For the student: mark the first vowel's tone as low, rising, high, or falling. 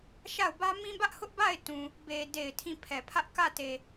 falling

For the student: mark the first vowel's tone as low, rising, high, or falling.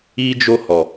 high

